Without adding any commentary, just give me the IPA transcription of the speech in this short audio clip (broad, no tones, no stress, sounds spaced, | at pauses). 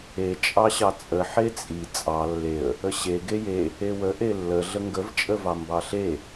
e t͡ʃʼ ɑ ɕ ɑ t͡sʼ ə ħ e t͡sʼ i t͡sʼ ɑ lː e ə̯ | ə ɕ e ɡ e j e | e w ə ʔ e lː ə ɮ ə ŋ ɡ ə v t͡ʃʼ ə v ɑ m b ɑ ɬ e